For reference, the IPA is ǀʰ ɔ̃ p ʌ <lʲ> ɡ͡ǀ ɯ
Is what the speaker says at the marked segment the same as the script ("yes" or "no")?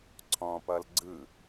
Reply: no